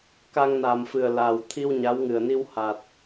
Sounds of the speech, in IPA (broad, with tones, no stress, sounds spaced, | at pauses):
k a˧ ŋ n a˨˩ m f ɨ˨˩ ə̯ l a˨˩ w t̪ʰ i˧ w ɲ a˧˥ w ŋ ɨ˨˩ ə̯ n i˧ w h a˨˩ t̚